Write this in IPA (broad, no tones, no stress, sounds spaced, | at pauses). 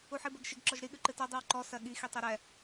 u ħ i b ɛ ɡ ʃ ɪ ɡ ǁ ɔ ʒ ɾ i ɠ ʉ ǃ ɨ t ɜ dˤ ɨ w ǃ ɔ s ɜ ɠ i x i tˤ i ɾ ɛ